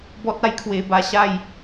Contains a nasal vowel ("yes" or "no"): no